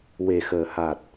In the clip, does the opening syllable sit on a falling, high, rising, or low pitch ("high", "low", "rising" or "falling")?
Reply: low